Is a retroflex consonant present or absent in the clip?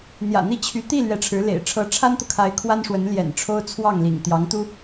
present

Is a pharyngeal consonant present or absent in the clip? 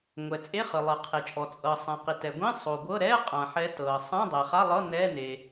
present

